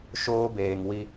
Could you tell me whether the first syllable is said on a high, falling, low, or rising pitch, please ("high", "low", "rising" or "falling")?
high